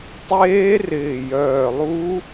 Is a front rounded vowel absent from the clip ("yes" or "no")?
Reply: no